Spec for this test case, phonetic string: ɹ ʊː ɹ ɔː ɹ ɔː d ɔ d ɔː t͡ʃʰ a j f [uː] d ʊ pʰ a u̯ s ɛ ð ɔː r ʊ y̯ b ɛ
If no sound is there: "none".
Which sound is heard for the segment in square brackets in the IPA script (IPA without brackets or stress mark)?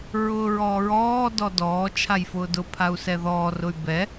ʊː